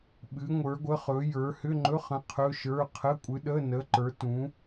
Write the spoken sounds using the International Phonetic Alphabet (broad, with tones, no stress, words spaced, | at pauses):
ɓɨ˨˥ŋʷə˞˨˥ɡʷə˧˥˧χɵ˨˥ jə˞˨˥ hʏ˧˥˧ŋ͡ǃɵ˧˥˧χə̃˨˥ qʰɵ˧˥˧ʃə˞˧˥˧ qʰə˧˥˧kʷʼɨ˨˥ ɗə˧˥˧nə˨˥ ǃə˞˨˥tũ˨˥